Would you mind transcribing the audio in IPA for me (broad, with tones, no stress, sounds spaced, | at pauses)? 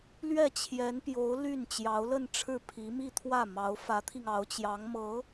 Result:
l ɥ ɛ˥˩ t͡ɕʰ j ɛ˧˥ n p j o˧˥ ʊ̯ l y˥˩ n t͡ɕ j ɑ˧˥ ʊ̯ l ə˥˧ n ʈ͡ʂʰ ɻ̩˥˩ pʰ i˧˥ m i˥˧ t̪ʰ w ä˥˩ m ɑ˧˥ ʊ̯ f ä˧˥ t̪ʰ i˧ ŋ ɑ˧˥ ʊ̯ t͡ɕ j ɑ˧˥ ŋ m ɤ˧˥